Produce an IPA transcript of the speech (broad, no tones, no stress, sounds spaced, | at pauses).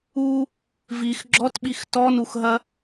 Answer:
u | v i x ɡ͡ǁ ɔ t ɓ i x t ɔ n u x ɦ ɐ